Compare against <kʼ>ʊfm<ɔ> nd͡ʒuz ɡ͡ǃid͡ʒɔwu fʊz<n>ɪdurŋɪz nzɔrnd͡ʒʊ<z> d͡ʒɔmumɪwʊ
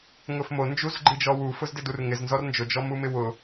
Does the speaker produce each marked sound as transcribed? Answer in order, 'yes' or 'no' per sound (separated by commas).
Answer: no, no, no, no